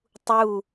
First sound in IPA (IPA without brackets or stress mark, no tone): tˤ